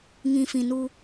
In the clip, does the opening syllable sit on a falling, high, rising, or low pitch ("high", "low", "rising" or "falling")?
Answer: low